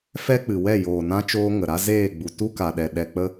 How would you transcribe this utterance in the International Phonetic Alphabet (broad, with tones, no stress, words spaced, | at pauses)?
fɛ˦k͡pɨ˨wɛ˦˨ joː˨nã˧t͡ʃoː˧ ŋə˨ɾa˦ zeː˦˨ɡ͡bu˨ tu˦ka˨ɗɛ˨ ɗɛ˧k͡pə˦